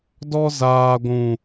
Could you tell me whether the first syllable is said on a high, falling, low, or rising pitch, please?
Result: high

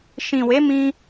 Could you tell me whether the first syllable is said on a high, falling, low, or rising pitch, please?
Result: low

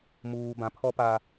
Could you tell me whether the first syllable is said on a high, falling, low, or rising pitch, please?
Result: low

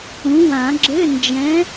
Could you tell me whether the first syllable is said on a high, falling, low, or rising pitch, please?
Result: rising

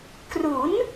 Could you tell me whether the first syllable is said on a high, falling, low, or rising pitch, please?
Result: rising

